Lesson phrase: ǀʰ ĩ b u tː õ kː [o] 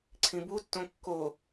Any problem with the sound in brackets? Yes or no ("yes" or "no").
no